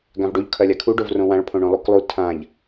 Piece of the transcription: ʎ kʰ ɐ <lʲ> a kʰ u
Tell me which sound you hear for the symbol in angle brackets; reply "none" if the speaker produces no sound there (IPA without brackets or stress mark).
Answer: lʲ